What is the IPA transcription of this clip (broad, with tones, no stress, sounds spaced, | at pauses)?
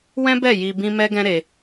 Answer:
w ɛ̃˦ b ɛ˦˨ j i˧ b ĩ˦ m ɛ˦ ɡ ɛ̃˦ ɾ e˧